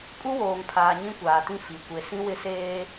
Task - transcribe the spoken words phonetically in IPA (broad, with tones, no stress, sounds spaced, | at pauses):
kʼ u˦ w oː˨ ŋ pʰ aː˨ ɲ ĩ˦ kʷ aː˨ t ĩ˦ f i˨ kʷ e˨ s ĩ˦ w ɪ˦ s eː˦